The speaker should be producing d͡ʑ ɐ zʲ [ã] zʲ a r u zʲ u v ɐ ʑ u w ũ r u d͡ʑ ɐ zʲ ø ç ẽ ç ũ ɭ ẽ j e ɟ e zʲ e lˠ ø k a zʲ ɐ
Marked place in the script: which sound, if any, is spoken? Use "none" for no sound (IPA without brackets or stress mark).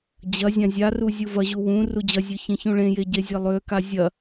ã